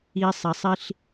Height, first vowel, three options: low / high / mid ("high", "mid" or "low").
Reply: high